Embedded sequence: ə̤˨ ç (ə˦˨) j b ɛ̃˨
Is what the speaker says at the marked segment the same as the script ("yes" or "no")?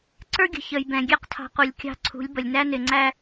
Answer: no